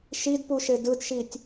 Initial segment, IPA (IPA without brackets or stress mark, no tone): ʃ